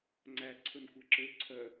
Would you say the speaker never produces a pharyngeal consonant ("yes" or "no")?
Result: yes